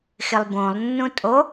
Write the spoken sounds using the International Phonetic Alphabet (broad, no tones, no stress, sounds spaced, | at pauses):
x ɪ lˠ b õ lˠ nː ũ tʼ o